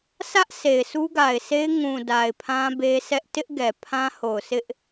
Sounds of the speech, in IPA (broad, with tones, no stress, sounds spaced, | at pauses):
s ä˦ ʔ sʰ e˨ ɪ̯ s u˦ ɡ a˨ ɪ̯ s e˦ ɪ̯ ŋ ũ˨ d a˨ ɪ̯ pʰ ã˦ b e˦ sʰ ɛ˦ ʔ t ɪ˦ ʔ ɡ ɛ˨ pʰ ã˦ h o˨ ʊ̯ sʰ ɪ˦ ʔ